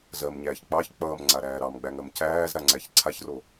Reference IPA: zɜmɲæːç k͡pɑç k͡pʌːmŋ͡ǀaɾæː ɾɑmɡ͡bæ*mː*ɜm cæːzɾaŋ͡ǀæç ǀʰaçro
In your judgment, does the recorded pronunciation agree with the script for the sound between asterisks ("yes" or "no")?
no